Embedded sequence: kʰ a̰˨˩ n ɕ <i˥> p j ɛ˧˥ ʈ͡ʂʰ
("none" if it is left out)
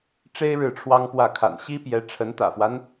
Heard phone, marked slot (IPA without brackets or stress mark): i˥